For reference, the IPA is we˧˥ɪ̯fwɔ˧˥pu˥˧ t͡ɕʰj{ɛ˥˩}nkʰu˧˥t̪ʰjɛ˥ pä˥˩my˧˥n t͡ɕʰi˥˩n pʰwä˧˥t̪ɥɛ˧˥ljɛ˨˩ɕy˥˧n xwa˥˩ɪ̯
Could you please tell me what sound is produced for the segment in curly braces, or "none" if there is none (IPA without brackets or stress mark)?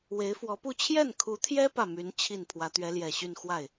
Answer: ɛ˥˩